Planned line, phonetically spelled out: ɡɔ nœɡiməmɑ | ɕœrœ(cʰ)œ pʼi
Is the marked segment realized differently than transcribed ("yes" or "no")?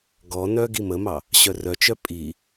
yes